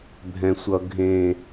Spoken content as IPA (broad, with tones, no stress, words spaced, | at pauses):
bʱɛ̃˨sʷʌ˨ ɡʱẽ˨